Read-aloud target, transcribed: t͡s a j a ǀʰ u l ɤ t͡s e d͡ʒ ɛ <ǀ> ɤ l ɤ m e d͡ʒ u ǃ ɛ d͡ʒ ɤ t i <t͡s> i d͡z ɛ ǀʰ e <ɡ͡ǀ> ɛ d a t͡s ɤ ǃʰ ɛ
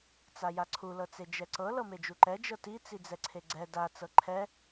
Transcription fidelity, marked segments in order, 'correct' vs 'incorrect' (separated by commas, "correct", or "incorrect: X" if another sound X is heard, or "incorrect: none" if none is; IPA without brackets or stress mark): correct, correct, correct